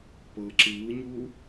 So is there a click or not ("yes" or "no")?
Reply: yes